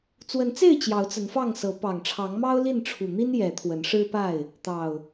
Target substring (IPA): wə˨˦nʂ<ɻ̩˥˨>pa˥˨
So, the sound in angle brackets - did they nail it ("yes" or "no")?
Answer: no